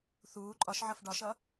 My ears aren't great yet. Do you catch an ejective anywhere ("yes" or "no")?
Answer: yes